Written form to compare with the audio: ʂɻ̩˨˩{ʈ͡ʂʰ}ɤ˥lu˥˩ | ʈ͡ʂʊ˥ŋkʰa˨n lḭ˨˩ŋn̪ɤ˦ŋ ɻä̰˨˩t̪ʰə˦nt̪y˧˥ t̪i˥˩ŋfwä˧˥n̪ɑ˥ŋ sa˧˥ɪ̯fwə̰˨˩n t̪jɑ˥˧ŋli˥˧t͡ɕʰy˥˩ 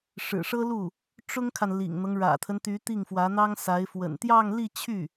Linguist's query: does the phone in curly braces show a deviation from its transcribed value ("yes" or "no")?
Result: yes